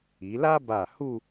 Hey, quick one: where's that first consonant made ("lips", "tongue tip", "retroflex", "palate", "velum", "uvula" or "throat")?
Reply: tongue tip